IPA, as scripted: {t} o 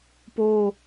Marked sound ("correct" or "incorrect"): incorrect